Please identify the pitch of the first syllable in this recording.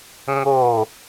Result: falling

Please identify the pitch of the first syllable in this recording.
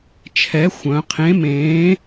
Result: rising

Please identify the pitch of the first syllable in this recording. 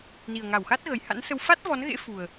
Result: low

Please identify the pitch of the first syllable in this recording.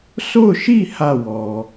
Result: falling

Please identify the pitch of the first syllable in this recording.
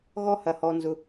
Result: high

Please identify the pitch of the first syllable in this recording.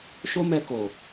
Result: high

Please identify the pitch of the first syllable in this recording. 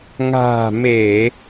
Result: low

